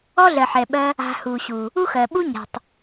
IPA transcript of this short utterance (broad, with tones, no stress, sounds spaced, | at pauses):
ɔ˦ ɮ ɜ˨ ħ ɛ˨ ɓ ɜ˧ | a̤˧ h u˨ ɕ u˨ | u˦ x ɜ˨ ɓ u˦ ɲ a̤˨ tˤ